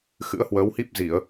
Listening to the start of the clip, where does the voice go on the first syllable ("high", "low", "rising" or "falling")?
rising